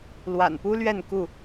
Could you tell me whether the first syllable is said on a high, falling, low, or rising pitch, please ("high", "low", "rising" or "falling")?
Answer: low